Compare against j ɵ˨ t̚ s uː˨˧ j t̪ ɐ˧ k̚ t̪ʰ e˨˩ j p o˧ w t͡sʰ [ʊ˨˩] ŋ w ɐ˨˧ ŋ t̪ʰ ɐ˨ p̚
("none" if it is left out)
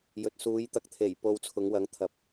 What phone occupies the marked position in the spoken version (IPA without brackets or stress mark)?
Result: ʊ˨˧